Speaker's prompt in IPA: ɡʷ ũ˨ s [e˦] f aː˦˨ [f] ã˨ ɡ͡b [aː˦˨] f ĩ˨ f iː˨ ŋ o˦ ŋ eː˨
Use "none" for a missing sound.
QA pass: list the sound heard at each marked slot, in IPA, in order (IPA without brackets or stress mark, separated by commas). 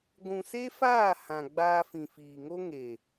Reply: e˦, h, aː˧